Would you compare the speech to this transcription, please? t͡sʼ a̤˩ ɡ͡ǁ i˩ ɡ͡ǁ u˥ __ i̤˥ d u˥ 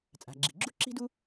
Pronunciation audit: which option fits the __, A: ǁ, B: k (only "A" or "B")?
A